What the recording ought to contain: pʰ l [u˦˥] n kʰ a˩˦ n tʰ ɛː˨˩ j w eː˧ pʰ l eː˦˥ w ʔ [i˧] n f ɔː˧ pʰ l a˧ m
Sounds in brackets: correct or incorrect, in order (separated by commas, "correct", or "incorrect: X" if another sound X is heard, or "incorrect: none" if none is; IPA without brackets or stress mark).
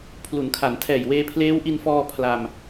incorrect: u˩˦, correct